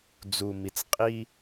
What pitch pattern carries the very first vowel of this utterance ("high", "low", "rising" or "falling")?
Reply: low